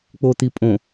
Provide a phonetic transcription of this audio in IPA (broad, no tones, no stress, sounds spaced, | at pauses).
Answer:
k͡p o t̪ i pʼ õ